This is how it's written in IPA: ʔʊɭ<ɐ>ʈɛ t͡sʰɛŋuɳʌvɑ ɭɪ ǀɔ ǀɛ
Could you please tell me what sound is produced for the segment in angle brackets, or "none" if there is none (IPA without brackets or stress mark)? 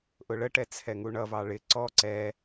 ə